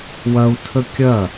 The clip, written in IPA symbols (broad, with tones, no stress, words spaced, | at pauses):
wɐ˧u̯ tʰə˦ kʲɐ˦˨